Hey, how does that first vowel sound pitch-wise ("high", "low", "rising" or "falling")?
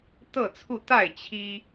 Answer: falling